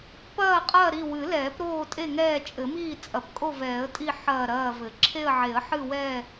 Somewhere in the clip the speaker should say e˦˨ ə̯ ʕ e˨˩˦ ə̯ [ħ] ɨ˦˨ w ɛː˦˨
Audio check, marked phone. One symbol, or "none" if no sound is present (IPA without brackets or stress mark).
ħ